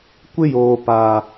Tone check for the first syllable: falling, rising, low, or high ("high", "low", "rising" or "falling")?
high